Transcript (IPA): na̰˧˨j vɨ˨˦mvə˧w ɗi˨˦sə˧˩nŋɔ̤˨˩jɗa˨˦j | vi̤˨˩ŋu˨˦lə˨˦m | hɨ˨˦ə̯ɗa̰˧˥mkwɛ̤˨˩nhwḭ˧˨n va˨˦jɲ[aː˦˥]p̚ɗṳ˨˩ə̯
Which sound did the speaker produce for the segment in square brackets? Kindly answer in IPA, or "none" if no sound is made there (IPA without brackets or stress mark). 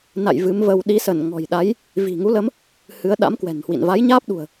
aː˦˥